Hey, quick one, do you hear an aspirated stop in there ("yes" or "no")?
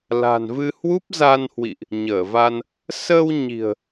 no